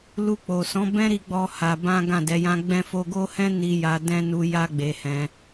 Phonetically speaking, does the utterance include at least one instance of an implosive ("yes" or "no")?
no